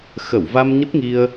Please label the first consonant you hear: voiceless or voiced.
voiceless